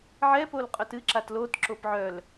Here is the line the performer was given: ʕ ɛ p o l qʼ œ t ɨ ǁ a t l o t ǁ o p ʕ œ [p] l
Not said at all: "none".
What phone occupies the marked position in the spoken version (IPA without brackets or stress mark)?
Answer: none